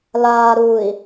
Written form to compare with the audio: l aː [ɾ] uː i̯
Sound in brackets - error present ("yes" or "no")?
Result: no